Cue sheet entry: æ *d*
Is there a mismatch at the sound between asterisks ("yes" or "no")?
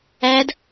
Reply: no